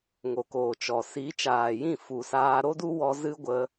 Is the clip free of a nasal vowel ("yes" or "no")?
no